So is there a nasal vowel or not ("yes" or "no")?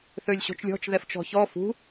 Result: no